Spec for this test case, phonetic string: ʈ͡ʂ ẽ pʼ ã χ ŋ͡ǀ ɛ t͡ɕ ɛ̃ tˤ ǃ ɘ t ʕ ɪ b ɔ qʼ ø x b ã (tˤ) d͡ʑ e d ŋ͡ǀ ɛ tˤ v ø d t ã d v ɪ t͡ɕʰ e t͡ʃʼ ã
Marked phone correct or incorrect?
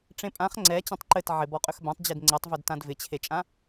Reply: correct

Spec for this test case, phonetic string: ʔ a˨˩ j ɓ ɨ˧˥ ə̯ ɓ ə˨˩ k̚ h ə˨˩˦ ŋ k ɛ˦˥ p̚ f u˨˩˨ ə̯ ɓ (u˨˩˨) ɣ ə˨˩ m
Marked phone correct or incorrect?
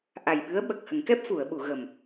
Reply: correct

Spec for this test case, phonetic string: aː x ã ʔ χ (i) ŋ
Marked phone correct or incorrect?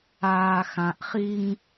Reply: correct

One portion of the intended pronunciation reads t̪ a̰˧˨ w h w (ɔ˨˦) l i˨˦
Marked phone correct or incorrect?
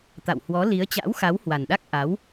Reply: correct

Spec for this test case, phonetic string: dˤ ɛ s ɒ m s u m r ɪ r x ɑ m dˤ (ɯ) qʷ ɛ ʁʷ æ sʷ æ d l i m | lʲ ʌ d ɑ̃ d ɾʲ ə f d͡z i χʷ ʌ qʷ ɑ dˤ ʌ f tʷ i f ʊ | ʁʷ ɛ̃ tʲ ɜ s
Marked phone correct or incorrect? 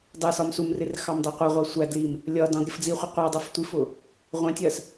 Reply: incorrect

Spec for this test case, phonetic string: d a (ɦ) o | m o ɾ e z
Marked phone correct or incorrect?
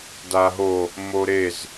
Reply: correct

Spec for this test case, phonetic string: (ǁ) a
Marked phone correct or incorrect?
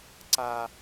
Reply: incorrect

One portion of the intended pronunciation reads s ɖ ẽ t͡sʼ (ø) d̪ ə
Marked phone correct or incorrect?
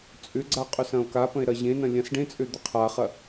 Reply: correct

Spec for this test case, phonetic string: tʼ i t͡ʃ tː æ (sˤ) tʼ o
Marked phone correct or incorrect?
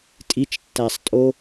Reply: correct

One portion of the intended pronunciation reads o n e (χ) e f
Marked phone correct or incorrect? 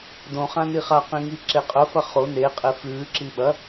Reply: incorrect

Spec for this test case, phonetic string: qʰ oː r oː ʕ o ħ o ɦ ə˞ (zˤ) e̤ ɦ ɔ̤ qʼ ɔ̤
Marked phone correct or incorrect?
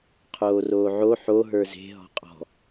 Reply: incorrect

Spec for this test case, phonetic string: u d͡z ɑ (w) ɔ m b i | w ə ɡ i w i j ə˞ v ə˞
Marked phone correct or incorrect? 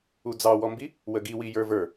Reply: correct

